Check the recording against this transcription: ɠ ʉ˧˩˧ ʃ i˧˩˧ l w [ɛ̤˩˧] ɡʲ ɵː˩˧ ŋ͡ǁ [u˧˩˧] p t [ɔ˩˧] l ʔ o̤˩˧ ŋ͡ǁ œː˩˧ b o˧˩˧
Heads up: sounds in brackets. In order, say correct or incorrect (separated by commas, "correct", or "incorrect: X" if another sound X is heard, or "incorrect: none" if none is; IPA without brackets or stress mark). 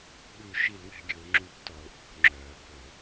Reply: correct, correct, correct